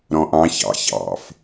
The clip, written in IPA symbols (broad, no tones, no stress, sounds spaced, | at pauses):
ɾ ɔ̃ ʔ ɑ̃ ç ɑ̰ ç ɑ̰ f